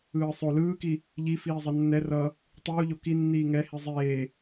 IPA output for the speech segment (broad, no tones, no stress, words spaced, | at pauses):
ɯːsˤo lɯːki | ʎi fiːzˤʌnːɛ rʌ | tˤuːʎo kinːiː ŋɛ hizˤeː